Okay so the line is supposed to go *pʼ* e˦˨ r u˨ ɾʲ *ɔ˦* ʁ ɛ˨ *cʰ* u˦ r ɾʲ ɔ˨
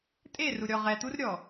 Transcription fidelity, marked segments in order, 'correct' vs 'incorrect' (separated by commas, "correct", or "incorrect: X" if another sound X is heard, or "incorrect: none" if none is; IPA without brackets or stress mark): incorrect: tʼ, incorrect: ɔ˨, incorrect: t̪